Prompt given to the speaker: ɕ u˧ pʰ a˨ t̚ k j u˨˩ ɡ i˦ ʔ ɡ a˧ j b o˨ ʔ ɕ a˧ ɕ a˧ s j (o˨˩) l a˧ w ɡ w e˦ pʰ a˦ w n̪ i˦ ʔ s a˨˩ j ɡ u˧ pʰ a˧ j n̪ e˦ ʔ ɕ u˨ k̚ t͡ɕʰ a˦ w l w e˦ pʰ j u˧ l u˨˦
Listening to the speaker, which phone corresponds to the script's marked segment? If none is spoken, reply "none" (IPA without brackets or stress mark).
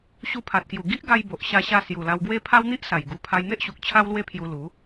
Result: u˨˩